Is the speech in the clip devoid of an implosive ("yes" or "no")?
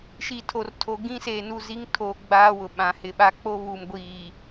no